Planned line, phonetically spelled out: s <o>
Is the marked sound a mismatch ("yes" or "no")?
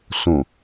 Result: yes